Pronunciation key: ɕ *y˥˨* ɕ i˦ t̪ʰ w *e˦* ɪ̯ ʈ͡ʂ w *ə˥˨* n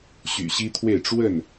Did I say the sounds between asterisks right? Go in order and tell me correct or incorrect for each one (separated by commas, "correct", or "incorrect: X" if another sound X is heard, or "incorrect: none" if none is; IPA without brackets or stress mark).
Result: incorrect: y̰˨˩, incorrect: e˥˨, correct